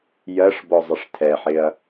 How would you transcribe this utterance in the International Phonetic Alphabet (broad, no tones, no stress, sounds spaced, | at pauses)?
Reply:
j ɜ ʂ b ɔ zˤ ɪ ʂ tʰ ɛ ħ ɪ ɐ̯